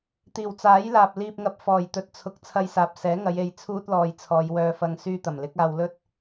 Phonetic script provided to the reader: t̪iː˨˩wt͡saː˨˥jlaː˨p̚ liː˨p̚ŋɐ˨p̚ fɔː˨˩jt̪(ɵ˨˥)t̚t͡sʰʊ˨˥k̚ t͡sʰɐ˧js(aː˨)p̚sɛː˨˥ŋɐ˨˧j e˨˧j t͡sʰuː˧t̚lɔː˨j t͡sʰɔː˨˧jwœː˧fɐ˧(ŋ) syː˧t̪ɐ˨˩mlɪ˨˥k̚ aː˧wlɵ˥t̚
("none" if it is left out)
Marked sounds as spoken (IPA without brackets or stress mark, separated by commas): ɵ˨˥, aː˨, ŋ